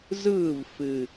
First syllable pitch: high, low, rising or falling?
falling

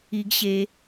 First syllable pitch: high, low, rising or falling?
high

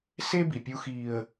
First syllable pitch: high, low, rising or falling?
high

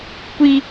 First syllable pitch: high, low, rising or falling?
high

